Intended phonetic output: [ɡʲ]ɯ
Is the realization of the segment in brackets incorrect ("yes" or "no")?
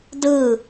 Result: yes